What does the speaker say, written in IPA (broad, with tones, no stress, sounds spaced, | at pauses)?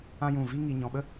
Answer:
ã˦ j ũ˦˨ v i˦ ŋ i˧ ɲ ɔ̃˧ ɓ ə˦